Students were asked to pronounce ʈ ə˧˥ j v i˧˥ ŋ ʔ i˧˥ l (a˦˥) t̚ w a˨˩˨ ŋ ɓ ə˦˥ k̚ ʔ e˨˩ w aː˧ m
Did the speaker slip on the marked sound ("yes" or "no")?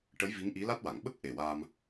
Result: no